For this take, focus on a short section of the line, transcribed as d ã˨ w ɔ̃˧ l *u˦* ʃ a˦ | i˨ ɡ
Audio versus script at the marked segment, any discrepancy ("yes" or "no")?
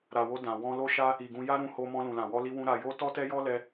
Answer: yes